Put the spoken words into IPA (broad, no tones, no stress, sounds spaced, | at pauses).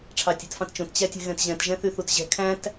ʈ͡ʂʰ ɑ tʲ ɛ̤ t f ɑ̃ t t͡ʃ õ t t͡ɕ æ tʲ ɛ̤ ɣ ɛ̃ t ʑ ɛ̃ t ʒ ɛ̃ θ y θ u t ʑ ɛ̤ kʰ æ̃ t